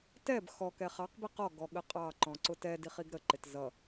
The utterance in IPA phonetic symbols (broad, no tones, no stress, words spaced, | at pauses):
tɛb xɔ kɛχɑq biqɔ ɡɔɠəqʼɑ ǃɔ̃ǀʊtɛ diχiɡɾə ǃɪtzʌ